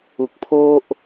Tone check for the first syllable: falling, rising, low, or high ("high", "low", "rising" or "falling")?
low